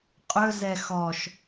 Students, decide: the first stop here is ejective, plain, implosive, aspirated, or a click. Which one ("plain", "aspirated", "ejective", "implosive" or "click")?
ejective